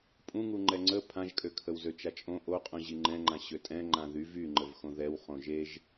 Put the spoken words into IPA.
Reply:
pʼ ũ ŋ u ŋ͡ǃ ɛ ŋ͡ǀ ə pʰ ã ʒ kʼ ø kʰ ə w z ø t͡ʃ a t͡ʃʼ õ ʔ o qʼ ũ ʑ i ŋ͡ǃ ɛ̃ ŋ͡ǃ ã ɕ ø tʼ ɛ̃ ŋ͡ǃ ã ð y v y ŋ͡ǃ ə v x õ ð ɛ w χ õ ʒ e ʒ

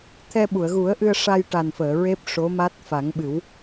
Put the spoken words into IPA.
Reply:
t̪ʰ ɛ˧ ɓ u˨˩˨ ə̯ ɣ u˨˩˦ ə̯ ʔ ɨ˧ ə̯ ʂ a˧ j ʈ a˨˩ n f əː˨˩˨ ɹ e˦˥ p̚ ʂ o˧˥ m a˦˥ t̚ f a˨˩˦ ŋ ɓ ɨ˨˩˦ w

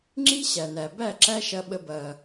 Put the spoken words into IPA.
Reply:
ŋ͡ǁ i˦ ɕ æ˨ n æ˨ b æ˦˨ ǁ æ˦ ʃ ɐ˧ ɓ ə˧ b ɐ˧

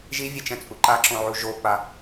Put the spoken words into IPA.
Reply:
ʒ i vʲ e t͡ʃ ɛ̃ t͡sʼ u ǃ a ǁ õ ʕ u ʒ o k͡p a

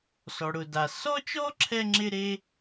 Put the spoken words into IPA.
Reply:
s ɔ˩ ɽ ʊ˩ d a˩ s ɔ˥ t͡ʃ ɔ˥ ǁʰ ɛ˥ ŋ͡ǁ ɪ˥ ɾ e˥

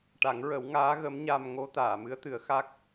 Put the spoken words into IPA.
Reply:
ʈ a˨˩˦ ŋ ɹ ə˨˩˦ w ŋ aː˧˥ ɣ ə˧˥ m ɲ a˧ m ŋ o˧˥ t̪ aː˨˩˨ m ɨ˧˥ ə̯ t̪ ɨ˨˩˦ ə̯ x a˦˥ k̚

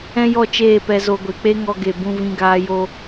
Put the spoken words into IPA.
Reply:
ɛ̃˦ j ɔ˦˨ t͡ʃ eː˦˨ p ɛ˧ z o˧ ɡʷ e˨ k͡p e˦ ŋ ɔ˧ ɡ e˨ b ũ˧ v ĩ˧ ɡ aː˧ j o˧

